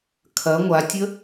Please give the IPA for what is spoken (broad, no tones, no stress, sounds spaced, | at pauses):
kʰ ɐ ŋʷ a tʲ ə